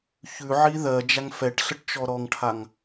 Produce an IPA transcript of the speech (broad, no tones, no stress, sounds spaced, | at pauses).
ç ʉ ʕ i ð ɜ d͡ʒ a ŋ f ɛ ʈ ɬ ə ʈ t͡ʃ ɔ ɾ ɔ ŋ ʈʰ a ŋ